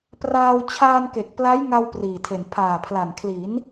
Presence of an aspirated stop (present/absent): present